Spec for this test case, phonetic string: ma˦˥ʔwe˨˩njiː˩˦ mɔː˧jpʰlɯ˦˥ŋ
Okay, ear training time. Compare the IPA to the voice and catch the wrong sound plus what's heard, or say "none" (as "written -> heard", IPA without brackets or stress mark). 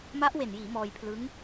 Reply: none